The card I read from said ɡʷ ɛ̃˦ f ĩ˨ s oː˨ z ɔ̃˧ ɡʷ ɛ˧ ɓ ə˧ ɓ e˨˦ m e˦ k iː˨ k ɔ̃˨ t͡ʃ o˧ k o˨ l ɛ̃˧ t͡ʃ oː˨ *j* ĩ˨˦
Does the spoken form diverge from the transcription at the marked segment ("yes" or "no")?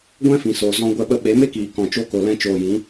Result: no